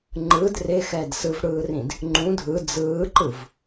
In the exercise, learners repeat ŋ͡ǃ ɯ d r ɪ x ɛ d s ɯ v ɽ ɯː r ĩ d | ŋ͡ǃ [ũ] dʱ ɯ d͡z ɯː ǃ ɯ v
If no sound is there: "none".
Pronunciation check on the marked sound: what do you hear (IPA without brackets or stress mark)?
ũ